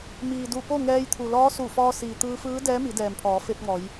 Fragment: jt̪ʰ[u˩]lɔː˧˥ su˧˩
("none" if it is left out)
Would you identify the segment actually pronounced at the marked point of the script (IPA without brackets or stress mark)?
u˩